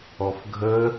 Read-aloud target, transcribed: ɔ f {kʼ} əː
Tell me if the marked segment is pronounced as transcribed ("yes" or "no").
no